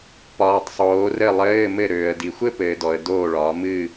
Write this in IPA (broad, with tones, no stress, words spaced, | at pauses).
pɒː˨tˤ sˤoː˨˦rɘ˦˨lˠɘː˧˥˧ mɘ˦˨ɾøː˨ə̯di˨ xʷɘ˥pɘː˨ dɔ˨ə̯doː˦˨ɭɒː˨˦ mɨː˦˨